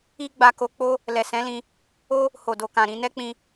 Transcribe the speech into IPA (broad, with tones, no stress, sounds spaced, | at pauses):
i˦ ɡ͡b a˧ k o˧ k͡p o˦ | l ɛ˨ s ɛ̃˨˦ l ĩ˧ | o˦ | h o˨ d o˨ k ã˨ ɾ ĩ˧ n ɛ˦ k͡p ĩ˧